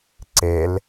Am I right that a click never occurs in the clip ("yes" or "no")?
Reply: no